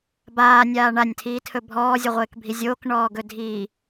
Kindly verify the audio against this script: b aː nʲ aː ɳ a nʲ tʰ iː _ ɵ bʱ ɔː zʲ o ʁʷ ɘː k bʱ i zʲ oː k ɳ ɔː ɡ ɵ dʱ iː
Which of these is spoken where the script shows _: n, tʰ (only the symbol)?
tʰ